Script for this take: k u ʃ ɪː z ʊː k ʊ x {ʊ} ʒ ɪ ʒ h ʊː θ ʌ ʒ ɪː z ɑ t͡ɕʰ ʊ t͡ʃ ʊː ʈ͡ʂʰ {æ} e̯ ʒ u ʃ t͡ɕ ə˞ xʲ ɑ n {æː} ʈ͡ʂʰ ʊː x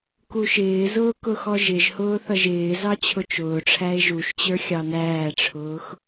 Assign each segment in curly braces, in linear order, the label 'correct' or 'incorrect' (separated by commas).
incorrect, correct, correct